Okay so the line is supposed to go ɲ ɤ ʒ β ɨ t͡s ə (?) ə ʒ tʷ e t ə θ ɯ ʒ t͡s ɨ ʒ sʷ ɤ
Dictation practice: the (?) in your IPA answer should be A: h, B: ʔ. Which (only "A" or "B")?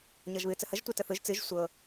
A